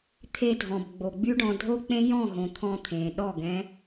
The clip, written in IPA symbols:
t̪ʰ e˧ dʱ ɔ̃˨ b ɡ͡b o˨ ɡ͡b y˦ ɖ ɔ̃˧ dʱ o˦ k͡p ẽ˦ j ɔ̃˦˨ ɦ õ˨ t̪ʰ ɔ̃˧ t̪ʰ ẽ˨ ɗ ɔ˦˨ ɡ ɛ̃˦

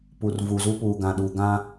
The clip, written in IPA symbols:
p u˨ r v u˨ z u˦ p uː˨ ɡ ã˨ ɗ u˨ ɡ ã˦

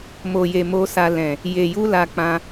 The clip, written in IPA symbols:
m o˨ j e˨ m o˨ s a˨ l ɛ̃˨ | j e˨ j u˧ l a˧ k͡p ã˧

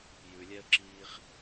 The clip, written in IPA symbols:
j ʉ lʲ ɛ ə̯ ǁ iː χ

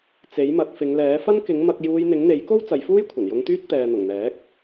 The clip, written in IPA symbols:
t͡s e˨˥ j m ɐ˨˥ t̚ f ɪ˨˧ ŋ l ɛː˨˥ f ɐ˥ n k ɪ˨˥ ŋ m ɐ˧ k̚ j uː˧ j n̪ ɪ˨˥ ŋ n̪ e˨˥ j k o˥ w t͡s ɐ˨˧ j f uː˥ j kʷʰ ɐ˨˩ n j ʊ˧ ŋ t̪ yː˥ t̚ t̪ ɛː˨ n̪ ʊ˨˩ ŋ n̪ ɛː˨˥ k̚

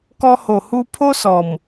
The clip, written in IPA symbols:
k ɔ˧ h o˨˩ h u˧ pʰ o˦ s ɔ˨˩ m

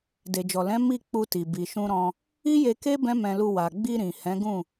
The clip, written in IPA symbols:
d e˨ d͡ʒ ɔ˨ l ɛ̃˨˦ m i˦˨ k͡p u˧ t i˨ b i˨ ʃ ũ˧ ɾ ɔ̃˧ | i˦ j e˧ k e˦ b ɛ̃˦ m ɛ̃˧ l u˧ w a˨ ɡ͡b i˧ ɾ ĩ˨ h ɛ̃˨˦ ɡ ũ˦˨

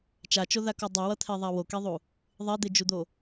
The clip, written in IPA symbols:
t͡ʃ a t͡ʃ o ð a k o dˤ i w ʌ t̪ʰ e ðˤ a w o k e ðˤ u | ðˤ e d̪ e d͡ʒ u d̪ o

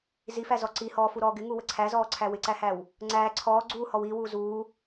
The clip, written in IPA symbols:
z i f æ z ɔ ǀ i h ɔː f u ɾ ɔː ɡ ɪ ŋ u w ə ǀʰ æ z ɔː ǀʰ æ w ɪ ǀ æ h æ w | ŋ͡ǀ æː ǀʰ ɔː ɡ͡ǀ uː h ɔ w iː w uː z uː

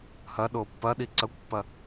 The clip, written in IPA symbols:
h ɐ ɗ o pː ɐ ɗ i ǀ ɐ kʷ pː ɐ

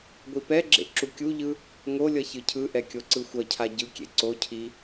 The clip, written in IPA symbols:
ɡʷ i p ɛ ɡ͡ǁ ḛ ǁ u kʲ u ʎ ɯ | ŋ o lʲ ʌ ç ɯ cʰ ɯ ʔ ɛ kʲ o ǀ ɯ xʷ ʌ cʰ a ɟ ɯ kʲ ḛ ǀ o cʰ i

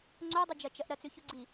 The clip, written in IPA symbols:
ŋ͡ǀ o dˤ ɨ d͡ʒ ɐ t͡ʃ ɐ ʔ ɾ ɐ t͡s ʉ ç u ɡ͡ǀ i

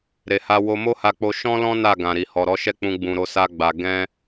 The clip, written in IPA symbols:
ɾ e˨ h a˧ w o˧ m o˦ h a˧ k͡p o˧ ʃ ɔ̃˦ l ɔ̃˦ n a˦˨ ɡ ã˨ ɾ i˨ h ɔ˨ ɾ ɔ˨˦ ʃ ɛ˦˨ k͡p ũ˧ ɡ͡b ũ˨ ɾ o˧ s a˧ ɡ͡b a˨ ɡ ɛ̃˧

